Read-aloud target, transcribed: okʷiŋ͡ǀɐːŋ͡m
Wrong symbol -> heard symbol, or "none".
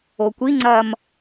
ŋ͡m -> m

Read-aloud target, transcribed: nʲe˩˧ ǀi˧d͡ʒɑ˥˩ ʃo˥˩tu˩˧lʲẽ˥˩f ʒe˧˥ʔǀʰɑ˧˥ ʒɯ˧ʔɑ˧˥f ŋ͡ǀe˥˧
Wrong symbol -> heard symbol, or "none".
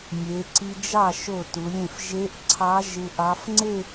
none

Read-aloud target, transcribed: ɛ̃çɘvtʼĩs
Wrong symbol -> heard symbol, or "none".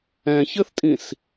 v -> θ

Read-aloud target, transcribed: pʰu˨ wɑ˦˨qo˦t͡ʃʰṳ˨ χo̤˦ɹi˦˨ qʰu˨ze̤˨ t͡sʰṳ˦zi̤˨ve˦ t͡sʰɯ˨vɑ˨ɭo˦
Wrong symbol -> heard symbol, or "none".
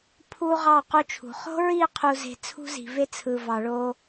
w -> ʁ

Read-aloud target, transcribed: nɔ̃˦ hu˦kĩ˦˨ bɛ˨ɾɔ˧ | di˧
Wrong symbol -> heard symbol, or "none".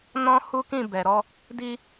none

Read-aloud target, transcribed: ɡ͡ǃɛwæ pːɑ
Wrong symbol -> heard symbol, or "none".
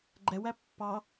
none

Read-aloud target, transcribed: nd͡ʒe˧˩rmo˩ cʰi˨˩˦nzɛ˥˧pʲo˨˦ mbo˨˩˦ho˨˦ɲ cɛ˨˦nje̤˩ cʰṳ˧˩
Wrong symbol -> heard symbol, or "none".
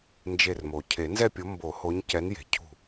i˨˩˦ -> e˨˩˦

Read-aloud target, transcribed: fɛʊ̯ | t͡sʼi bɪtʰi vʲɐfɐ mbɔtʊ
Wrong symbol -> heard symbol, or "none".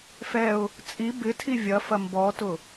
none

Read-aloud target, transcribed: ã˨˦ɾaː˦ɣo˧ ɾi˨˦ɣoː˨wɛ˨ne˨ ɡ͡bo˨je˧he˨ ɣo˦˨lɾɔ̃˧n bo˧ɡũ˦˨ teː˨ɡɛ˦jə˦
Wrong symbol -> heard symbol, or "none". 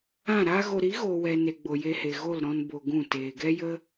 ã˨˦ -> ã˦˨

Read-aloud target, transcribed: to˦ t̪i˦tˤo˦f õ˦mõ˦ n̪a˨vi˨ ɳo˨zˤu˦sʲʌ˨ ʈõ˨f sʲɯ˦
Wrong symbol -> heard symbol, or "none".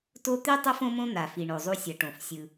v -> f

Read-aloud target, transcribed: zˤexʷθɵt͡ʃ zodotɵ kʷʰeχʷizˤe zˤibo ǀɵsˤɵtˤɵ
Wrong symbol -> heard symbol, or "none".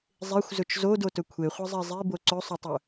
θ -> z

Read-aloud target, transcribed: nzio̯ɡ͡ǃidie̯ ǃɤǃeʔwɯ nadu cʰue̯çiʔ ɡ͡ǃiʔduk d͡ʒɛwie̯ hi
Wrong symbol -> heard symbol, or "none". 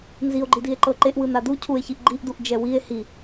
k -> ʔ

